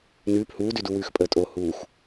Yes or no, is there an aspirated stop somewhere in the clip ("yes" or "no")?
no